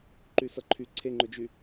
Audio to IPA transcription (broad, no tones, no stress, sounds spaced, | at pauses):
ǃ y s ʌ ǃʰ y ǀʰ e ŋ͡ǃ ɵ d͡ʒ y